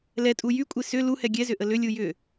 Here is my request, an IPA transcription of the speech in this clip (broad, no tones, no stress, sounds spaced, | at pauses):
l ɛ tʼ u j y kʷʼ e s ʏ l u h ɛ ɡʲ ɛ z ʏ ʔ ə l ʏ lʲ u j ʏ